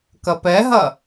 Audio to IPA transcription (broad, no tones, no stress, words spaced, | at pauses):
kɐpɛɦɐ